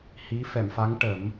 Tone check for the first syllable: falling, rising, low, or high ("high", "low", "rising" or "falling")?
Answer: rising